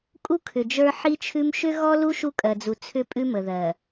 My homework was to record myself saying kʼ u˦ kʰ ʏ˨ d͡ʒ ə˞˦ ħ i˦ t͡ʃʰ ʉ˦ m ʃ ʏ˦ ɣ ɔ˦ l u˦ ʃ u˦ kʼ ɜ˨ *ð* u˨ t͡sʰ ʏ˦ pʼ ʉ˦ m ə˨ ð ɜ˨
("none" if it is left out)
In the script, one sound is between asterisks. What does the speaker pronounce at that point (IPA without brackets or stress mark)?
d͡z